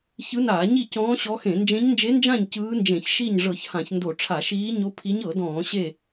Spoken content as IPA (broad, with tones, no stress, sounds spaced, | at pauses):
ç ɯ˧˥ n aː˧˩˧ ɲ i˥˨ c ɔ̃ː˧˥ ɕ ɔ˧˥ x ẽ˧˩˧ n d͡ʒ ẽ˧˥ ɲ n d͡ʒ e˧˥ n d͡ʒ ã˥˨ ɲ c ɯː˧˥ n d͡ʒ ẽ˧˩˧ ç ʃ i˥˨ ɲ ʐ ɤ˧˩˧ ç h ã˧˩˧ ç n d o˧˩˧ ʈ͡ʂʰ a˧˩˧ ʃ iː˧˥ ɲ o˧˥ pʰ i˧˥ ɲ ɤ˧˩˧ d ɔ̃ː˧˩˧ ɕ e˥˨